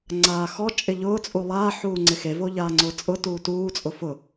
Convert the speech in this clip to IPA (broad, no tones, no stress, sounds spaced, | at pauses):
ŋ͡ǀ aː x ɔ t͡ʃʼ ɪ ʎ ʊː t͡sʼ u lˠ aː ħ uː ŋ͡ǀ ɪ x e v o ʎ aː ŋ͡ǀ ʊː t͡sʼ ʊ t uː t uː t͡sʼ ʊ f ʊ